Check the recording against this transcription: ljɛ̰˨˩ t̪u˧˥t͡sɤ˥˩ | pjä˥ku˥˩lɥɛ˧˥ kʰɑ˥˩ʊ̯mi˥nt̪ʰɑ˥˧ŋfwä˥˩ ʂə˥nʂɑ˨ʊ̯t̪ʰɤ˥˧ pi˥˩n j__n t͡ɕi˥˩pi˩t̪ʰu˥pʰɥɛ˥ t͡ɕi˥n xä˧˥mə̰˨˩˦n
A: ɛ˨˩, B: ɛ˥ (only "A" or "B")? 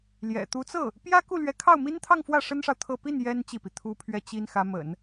B